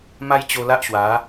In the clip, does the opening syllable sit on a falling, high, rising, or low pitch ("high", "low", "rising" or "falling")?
high